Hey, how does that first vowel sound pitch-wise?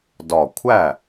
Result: low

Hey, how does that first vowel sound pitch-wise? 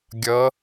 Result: rising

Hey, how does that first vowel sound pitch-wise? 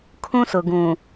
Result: high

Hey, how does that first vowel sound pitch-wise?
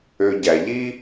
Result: low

